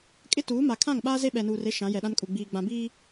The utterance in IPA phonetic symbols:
kʼ ɪ˦ t uː˨˦ m a˨ kʰ ã˦˨ ŋ ɓ aː˦ z e˦ ɓ ɛ˨ n uː˨ r e˦ ʃ ã˨˦ j ɛ˨ ɗ ã˦ n kʼ u˨ ɡ͡b iː˨ ɡ͡b ã˨ b iː˦

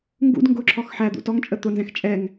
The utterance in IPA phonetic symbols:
ŋ ɡ ṵ d ŋ ɡ ʊ ǁʰ ɔ x ħ æ d̪ ṵ t ɔ ŋ t͡ʃʼ ə t̪ ʊ n z ɛ̃ x t͡ʃʼ ɛ ŋ

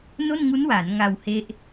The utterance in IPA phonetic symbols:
n o˥˩ n ŋ u˦˥ n w aː˩˦ n ŋ a˧ w h e˦˥ ʔ

